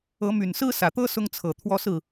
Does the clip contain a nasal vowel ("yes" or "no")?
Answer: no